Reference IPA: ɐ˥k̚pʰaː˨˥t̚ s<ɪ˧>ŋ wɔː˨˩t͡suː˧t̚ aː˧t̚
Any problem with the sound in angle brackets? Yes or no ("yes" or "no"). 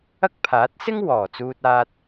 yes